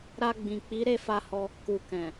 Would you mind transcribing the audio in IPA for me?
ɾ a˧ ɡ͡b ĩ˨ k͡p i˨˦ ɾ e˦˨ f a˧ h ɔ˧ | k u˨ k ɛ̃˨

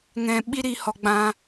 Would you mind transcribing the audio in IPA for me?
ŋ ɛ̃˧ ɓ i˦ ɾ i˧ h ɔ˧ ɡ͡b ã˦

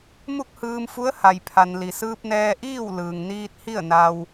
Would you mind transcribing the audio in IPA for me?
m u˥˨ k̚ h ɯː˧ m f u˧˥ ə̯ h a˩ j pʰ a˩ n l i˩ s ɯː˧ p̚ n ɛː˧ ʔ iː˥˨ w l ɯː˩ ŋ n iː˧ t̚ h i˥˨ ə̯ n a˧ w

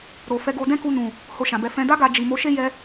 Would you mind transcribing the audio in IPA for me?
ɾ o˨ f ɛ˧ ɡ o˧ d ɛ̃˦ k u˧ n ũ˨ | h o˧ ʃ ã˨ b ɛ˧ f ɛ̃˨ d a˧ ɡ a˨ d͡ʒ i˨ m o˨˦ ʃ e˦ j ɛ˧

